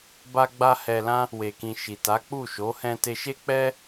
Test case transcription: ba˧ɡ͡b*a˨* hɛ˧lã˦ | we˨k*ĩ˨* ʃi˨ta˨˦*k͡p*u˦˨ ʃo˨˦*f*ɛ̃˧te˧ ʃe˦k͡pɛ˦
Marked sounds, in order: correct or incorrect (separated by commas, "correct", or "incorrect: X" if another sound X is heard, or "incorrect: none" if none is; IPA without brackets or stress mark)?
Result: incorrect: a˧, correct, correct, incorrect: h